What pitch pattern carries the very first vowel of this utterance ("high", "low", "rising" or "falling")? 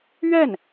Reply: falling